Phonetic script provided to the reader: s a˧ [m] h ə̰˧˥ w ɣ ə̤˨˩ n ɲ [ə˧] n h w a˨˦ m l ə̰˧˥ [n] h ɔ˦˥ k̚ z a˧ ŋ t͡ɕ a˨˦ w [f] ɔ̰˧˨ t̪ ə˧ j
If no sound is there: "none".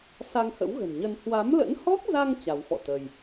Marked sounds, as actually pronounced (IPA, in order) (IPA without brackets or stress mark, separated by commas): ŋ, ə˧, n, f